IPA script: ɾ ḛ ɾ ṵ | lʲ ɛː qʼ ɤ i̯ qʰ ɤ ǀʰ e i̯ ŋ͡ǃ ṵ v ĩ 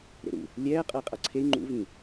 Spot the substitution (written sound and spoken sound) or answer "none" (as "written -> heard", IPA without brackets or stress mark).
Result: qʰ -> qʼ